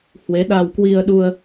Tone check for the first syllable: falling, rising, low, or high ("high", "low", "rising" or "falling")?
rising